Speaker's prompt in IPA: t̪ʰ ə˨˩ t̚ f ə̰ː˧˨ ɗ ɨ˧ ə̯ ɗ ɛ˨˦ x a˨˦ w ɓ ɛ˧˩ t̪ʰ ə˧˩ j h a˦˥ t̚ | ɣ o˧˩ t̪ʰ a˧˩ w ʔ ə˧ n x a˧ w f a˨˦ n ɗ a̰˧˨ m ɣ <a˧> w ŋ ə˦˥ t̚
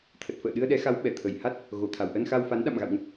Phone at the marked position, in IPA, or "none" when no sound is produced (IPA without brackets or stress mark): a̰˧˨